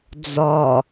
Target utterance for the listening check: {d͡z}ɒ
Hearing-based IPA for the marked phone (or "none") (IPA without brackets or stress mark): d͡z